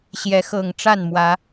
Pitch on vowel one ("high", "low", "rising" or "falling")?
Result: rising